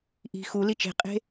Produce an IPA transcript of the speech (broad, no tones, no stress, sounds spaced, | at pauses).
ʔ i̤ x u l i t͡ʃ e̤ qʼ e̤